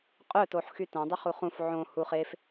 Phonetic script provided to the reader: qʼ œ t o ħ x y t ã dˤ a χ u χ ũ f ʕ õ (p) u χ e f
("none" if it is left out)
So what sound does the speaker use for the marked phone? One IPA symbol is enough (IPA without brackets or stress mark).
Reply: h